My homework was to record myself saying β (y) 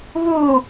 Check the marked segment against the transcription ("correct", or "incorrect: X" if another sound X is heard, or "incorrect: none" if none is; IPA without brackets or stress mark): incorrect: u